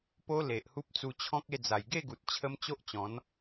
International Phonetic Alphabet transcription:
p o˦ l e˨ ʔ h u˦ p̚ t͡s u˧ t͡ɕʰ ɔ̃˦ k̚ e˥˧ d͡z a˨˩ j ɡ e˥˧ ɡ u˨ t̚ t͡ɕʰ ə˦ m t͡ɕ o˦ ʔ t͡ɕ ɔ̃˨˦ n

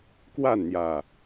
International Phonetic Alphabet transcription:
k w a˥˨ n n̪ j ä˨˩

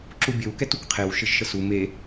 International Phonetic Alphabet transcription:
ǁ u bʲ ɘ w k ɛ t u k qʰ e w ʃ ɘ ʒ ʃ ə s u m e

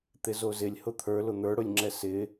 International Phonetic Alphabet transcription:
t̪ ɪ z o z ɪ lʲ h ʊ t̪ʰ ə˞ l ʊ n̪ ə˞ ɽ ʊ lʲ ŋ͡ǁ ɛ s ɪ

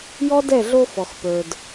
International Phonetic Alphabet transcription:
j ɔ˦ d ɛ˦˨ ɮ o˧ f ɔ˨ x p ə˞˨ d

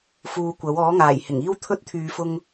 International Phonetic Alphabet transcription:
f uː˧ kʷ ɐ˨˥ w ɔː˨˥ ŋ aː˨˩ j h ɪ˨˩ ŋ iː˥ w t̪ʰ ɵ˥ t̚ t̪ʰ yː˨˧ f ʊ˧ ŋ

